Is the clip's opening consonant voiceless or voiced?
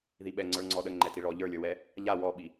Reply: voiced